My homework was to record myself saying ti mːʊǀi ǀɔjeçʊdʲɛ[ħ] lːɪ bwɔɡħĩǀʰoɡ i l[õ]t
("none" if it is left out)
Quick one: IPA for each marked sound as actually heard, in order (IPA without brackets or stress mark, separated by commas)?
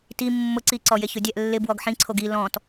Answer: ʔ, ɔ̃